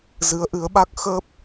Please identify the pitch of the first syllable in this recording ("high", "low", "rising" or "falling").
rising